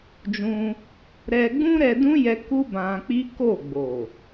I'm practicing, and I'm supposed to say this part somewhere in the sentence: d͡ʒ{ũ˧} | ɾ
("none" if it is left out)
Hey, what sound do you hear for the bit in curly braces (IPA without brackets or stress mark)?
ũ˧